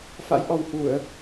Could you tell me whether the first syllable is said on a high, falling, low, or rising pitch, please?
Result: rising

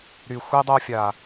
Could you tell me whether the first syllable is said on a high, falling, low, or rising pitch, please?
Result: low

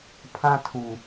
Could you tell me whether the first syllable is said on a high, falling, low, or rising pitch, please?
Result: high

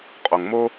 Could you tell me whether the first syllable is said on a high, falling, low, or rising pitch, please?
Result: low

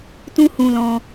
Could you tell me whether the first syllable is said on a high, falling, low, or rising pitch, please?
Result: high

